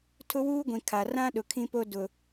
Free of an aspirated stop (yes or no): no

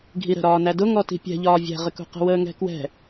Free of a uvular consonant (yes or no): no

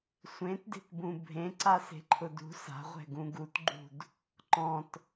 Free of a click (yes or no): no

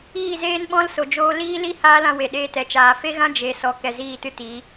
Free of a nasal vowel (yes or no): no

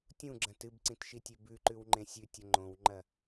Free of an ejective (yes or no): yes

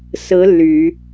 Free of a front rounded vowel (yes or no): no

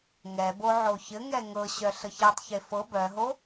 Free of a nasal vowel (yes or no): yes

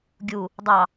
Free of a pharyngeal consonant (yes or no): yes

